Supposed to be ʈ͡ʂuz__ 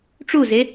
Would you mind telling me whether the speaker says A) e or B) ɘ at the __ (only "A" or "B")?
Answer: A